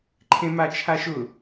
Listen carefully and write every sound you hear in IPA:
ǃʰ ẽ m a t͡ʃʰ a ʃ ʊ

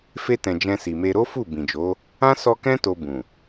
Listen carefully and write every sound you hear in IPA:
f e˧ t ɛ̃˨ d͡ʒ ɛ̃˧ s i˨ m e˧ ɾ o˦ f u˦˨ b ĩ˨ d͡ʒ o˨˦ | ã˦ s ɔ˧ k ɛ̃˦ t o˧ b ũ˨

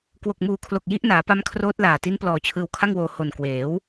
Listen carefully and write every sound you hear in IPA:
k w o˨˩ k̚ m uː˨˩ kʰ l o˨˩ k̚ j i˦˥ ʔ n aː˩˦ p a˧ m kʰ r oː˦˥ t̚ l aː˨˩ t i˦˥ n p l ɔː˨˩ t͡ɕʰ ɯː˧ w kʰ a˥˩ ŋ w oː˧ h o˨˩ n k w eː˩˦ w

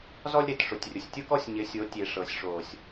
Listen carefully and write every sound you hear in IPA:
z ɔ˦ lʲ ɾ e˨ t ʂ ʊ˨ tʲ rʲ ʊ˨ sʲ tʲ ʊ˦ k ɔ˦ sʲ ɲ ɪ˨˦ sʲ o˨˦ tʲ e˨ ʂ ɤ˨ sʲ ʂ o˨ sʲ

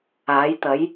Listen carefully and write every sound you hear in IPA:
aː˨˥ j t̪ ɐ˨˥ j

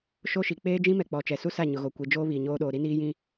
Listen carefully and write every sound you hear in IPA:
ʃ o˦ ʃ i˨ k͡p eː˦ d͡ʒ ĩ˦ m ɛ˨ k͡p ɔ˨ t͡ʃ ɛ˨ s u˦ s a˦˨ ɲ ʊ˨ ɣ o˨ kʷ i˨ d͡ʒ oː˦ β iː˨ ɲ oː˦ ɗ oː˨ ɾ i˦ n iː˦ j ĩ˦

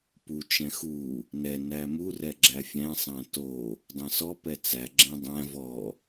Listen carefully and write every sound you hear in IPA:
p u t͡ʃ ɛ̃ x u | n ɛ n æ m u r ɛ ɡ͡ǁ æ fʲ æ̃ sˤ æ̃ t o | dˤ ɛ̃ s ɔ p ɛ t͡s æ ɡ͡ǁ ɛ̃ dˤ æ̃ v ɔ

